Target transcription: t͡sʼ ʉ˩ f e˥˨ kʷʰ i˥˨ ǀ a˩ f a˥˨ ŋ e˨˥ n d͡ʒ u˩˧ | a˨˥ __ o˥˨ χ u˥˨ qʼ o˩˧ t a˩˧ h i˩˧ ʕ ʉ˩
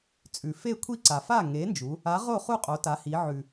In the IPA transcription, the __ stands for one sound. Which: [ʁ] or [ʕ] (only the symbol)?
ʁ